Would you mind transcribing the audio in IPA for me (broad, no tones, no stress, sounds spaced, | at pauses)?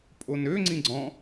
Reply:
pʼ o n ø ŋ͡ǀ ĩ ɡ͡ǀ ɔ̃